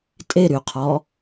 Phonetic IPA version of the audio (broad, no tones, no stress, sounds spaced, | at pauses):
tʼ e ɾ y qʰ ɔ